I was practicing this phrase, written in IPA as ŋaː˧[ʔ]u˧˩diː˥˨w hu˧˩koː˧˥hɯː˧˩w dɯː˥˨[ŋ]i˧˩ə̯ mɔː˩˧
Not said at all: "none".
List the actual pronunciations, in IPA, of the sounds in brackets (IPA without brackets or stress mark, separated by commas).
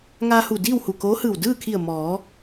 h, kʰ